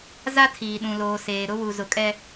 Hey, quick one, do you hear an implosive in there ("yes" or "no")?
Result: yes